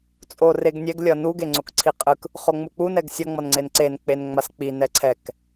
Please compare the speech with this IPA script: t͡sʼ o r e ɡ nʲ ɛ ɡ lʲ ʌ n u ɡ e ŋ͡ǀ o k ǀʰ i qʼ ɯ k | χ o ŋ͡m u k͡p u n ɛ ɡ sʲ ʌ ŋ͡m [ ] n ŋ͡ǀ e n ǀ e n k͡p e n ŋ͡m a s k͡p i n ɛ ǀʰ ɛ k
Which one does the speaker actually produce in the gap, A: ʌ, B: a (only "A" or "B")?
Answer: A